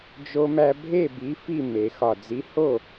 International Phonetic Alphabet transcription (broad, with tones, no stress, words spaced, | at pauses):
d͡ʒo˧ mæ˧ bʱe˥˩bi˨˥ fi˥˩ me˨˩˦xɒ˧˩ d͡zi˨˥ho˥˩